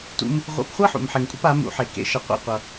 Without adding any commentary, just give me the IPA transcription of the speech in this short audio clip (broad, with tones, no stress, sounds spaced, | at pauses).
t ṵ˦ m | ʁʷ ḛ˧ p χʷ ʌ˦ ħ ṵ˨ m ħ e˨ ŋ kʷʼ ʌ˨˦ p a˨˦ m ṵ˨˦ ħ e˨ k ḛ˧ ʃ ʌ˧ qʷ a̰˦ qʷ ʌ˧